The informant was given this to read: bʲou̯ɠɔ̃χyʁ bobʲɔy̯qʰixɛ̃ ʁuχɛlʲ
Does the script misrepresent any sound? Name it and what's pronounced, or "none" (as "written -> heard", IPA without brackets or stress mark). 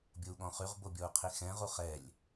y̯ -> u̯